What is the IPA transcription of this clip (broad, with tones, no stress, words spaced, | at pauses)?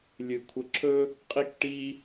lʲɨ˨ kʷʰə˨ǁʰɵ˦ | qʼi˦kʈi˦